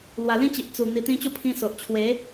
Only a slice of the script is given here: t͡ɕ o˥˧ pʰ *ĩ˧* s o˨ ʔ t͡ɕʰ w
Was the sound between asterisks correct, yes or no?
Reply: yes